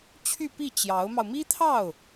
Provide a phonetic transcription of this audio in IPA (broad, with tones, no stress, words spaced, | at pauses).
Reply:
t͡ɕʰy˥˧pi˥˩ t͡ɕjɑ˧˥ʊ̯mɑ˧ʊ̯ mi˥t̪ʰɑ˥˩ʊ̯